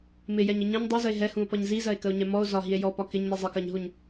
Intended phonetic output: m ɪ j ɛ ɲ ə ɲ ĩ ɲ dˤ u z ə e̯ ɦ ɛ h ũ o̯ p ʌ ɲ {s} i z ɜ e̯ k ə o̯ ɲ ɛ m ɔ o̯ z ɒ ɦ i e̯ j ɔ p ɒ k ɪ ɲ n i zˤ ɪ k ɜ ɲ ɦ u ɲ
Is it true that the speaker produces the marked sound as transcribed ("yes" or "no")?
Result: no